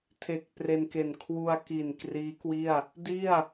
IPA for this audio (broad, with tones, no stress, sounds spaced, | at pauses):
tʰ e˨˩ k̚ p r e˧ n k e˨˩ n kʰ w u˧ a̯ k i˨˩ n k r iː˦˥ k w i˥˩ a̯ | d i˥˩ a̯